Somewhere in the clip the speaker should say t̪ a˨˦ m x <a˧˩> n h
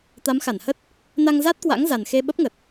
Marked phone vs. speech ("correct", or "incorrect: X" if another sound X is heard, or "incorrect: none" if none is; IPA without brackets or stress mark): correct